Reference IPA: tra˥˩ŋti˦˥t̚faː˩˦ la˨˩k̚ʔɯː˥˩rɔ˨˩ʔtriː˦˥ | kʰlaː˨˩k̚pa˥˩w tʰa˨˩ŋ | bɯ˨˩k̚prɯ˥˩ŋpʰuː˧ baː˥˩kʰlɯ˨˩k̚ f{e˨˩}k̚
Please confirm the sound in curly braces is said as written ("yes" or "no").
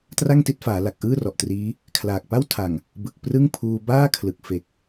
yes